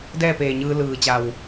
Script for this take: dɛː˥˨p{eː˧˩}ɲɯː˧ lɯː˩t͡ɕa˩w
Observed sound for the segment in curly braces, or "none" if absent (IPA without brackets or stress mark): eː˧˩